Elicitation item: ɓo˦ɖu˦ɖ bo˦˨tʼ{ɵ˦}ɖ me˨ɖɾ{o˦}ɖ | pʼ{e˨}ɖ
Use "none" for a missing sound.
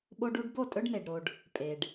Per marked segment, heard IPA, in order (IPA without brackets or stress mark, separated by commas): ɵ˦, o˨, e˨